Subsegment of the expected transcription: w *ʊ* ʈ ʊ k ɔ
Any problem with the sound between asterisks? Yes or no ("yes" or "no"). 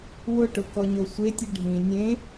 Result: no